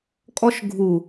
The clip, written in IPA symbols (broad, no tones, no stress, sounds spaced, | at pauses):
kʼ ɔ ʃ ɡʱ u